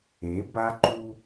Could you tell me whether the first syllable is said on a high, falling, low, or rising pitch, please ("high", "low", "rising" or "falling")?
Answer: rising